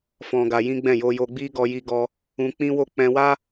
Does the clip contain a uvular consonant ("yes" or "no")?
no